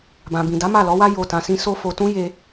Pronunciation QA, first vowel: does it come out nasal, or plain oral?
nasal